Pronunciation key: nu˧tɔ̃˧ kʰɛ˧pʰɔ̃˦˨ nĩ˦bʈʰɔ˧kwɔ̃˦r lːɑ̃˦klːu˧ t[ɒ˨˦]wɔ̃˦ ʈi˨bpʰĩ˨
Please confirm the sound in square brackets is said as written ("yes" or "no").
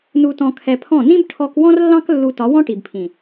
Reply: yes